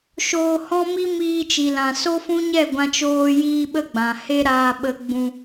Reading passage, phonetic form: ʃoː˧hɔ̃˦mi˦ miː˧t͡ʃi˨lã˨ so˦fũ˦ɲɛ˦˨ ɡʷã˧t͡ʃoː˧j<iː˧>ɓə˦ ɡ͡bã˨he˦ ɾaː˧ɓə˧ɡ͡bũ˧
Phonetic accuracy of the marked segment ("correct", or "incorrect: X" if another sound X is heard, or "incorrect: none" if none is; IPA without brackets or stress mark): correct